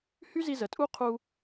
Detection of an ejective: present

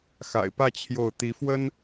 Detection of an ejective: absent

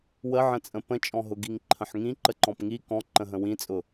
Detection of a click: present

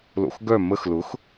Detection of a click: absent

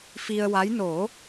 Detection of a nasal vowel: absent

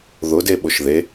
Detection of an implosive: present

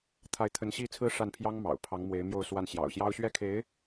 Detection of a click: absent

